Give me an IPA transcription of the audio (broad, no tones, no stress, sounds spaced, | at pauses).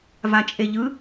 v a t͡ʃʼ e ʎ ɯ